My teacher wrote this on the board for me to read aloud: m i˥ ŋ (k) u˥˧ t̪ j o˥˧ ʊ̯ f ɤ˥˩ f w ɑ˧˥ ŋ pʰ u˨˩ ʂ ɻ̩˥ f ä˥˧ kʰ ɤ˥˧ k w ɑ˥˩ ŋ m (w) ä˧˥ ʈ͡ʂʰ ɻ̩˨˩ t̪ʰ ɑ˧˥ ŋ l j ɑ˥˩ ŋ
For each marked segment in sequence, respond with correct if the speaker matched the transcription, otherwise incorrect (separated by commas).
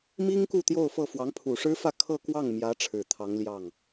correct, incorrect